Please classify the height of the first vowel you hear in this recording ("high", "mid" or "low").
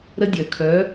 mid